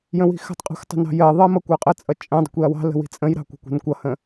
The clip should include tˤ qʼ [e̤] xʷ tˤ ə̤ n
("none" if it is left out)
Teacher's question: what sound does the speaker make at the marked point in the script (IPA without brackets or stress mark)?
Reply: i̤